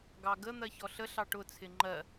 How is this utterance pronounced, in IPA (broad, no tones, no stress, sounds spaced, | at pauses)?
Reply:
ɡ ɑ ɡ ə n̪ ɜ ç ɔ ɬ ə ɬ ɑ ʈ ʊ t͡sʰ ɪ ŋ͡ǃ ɜ